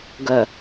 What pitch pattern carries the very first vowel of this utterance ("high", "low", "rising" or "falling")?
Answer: low